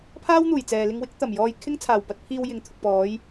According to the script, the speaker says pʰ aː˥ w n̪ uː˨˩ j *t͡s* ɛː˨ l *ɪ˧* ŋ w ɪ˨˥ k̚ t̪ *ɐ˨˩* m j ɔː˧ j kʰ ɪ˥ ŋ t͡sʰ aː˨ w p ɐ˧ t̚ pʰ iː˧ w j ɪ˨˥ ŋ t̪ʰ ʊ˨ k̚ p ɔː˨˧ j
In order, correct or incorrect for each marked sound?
correct, correct, correct

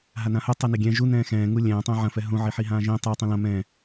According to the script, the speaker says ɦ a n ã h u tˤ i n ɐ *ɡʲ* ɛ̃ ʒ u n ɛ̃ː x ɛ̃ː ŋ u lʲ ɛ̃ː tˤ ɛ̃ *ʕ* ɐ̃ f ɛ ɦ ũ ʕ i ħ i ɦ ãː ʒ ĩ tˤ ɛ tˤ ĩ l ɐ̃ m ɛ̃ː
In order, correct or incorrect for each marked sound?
correct, correct

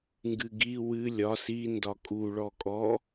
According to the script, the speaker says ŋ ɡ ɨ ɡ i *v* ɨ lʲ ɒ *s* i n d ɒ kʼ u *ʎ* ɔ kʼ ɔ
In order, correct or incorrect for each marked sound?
incorrect, correct, incorrect

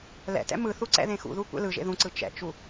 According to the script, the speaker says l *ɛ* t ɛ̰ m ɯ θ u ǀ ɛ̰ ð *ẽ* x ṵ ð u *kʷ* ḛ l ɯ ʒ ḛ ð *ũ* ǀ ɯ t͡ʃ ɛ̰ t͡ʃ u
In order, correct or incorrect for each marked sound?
incorrect, correct, correct, correct

